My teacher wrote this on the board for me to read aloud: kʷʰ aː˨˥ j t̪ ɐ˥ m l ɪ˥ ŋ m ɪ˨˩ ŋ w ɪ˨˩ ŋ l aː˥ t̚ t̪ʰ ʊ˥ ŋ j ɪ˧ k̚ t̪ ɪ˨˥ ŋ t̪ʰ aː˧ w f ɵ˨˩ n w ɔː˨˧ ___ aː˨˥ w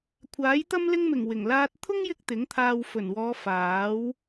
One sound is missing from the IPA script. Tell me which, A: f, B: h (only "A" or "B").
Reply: A